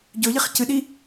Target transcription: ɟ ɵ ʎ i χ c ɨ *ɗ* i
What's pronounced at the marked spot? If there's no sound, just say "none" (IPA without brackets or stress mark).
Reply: ɗ